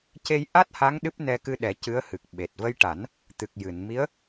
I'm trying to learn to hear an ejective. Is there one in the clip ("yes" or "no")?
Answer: no